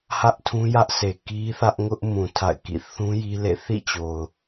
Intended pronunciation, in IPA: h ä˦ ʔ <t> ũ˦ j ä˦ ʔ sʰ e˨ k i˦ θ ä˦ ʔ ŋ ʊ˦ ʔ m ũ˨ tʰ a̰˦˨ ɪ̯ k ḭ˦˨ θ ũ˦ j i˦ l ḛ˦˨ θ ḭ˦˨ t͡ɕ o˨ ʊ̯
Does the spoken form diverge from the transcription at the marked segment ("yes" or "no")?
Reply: yes